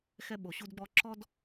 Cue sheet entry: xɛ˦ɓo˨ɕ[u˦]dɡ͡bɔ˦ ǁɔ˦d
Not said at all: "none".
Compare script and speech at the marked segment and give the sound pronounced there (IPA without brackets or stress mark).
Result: u˦